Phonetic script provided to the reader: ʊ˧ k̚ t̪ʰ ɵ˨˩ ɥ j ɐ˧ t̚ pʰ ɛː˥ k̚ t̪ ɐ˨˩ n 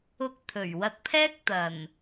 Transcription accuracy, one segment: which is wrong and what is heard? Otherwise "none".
j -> w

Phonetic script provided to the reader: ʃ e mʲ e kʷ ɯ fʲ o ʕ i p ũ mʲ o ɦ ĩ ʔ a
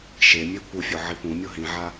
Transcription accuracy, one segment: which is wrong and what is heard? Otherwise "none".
ʔ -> ʕ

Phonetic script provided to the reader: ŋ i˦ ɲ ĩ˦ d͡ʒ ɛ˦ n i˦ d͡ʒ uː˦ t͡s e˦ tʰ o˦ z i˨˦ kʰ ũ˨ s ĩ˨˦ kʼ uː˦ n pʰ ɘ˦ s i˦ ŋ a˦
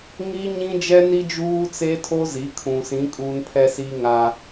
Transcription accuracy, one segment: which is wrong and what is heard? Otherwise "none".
ɘ˦ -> ɛ˦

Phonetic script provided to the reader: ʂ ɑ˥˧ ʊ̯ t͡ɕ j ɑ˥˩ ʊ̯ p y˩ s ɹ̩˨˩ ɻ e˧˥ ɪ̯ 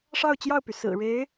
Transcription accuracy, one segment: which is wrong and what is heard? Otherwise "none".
none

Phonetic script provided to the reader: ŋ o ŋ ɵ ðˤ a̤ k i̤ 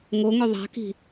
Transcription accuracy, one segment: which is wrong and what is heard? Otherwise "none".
none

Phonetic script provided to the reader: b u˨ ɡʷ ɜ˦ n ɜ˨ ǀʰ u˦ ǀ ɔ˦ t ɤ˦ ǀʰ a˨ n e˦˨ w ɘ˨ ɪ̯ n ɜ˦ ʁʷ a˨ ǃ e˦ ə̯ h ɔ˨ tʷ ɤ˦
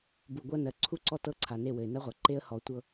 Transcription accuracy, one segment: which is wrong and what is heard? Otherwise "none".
none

